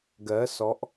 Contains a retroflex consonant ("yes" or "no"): no